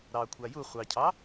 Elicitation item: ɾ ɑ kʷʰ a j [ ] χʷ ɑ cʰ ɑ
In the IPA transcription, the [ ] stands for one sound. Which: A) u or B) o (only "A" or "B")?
A